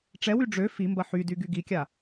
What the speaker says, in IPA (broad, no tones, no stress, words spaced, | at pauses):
ʈ͡ʂɛwy ɖ͡ʐø fimbɐ ħydy ɡyɡikʲa